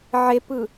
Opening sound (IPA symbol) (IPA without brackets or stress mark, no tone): ʕ